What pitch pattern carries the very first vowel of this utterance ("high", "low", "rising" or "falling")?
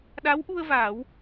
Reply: rising